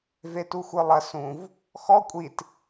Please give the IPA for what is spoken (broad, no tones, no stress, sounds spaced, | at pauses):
v e t u xʷ ə˞ lˠ ɐ s ũ v | x ɔ kʷʼ i t